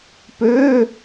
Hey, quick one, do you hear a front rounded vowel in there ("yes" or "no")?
yes